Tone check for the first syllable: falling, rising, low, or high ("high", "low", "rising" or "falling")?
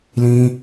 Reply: high